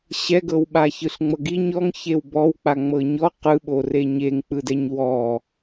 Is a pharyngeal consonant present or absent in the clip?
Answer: absent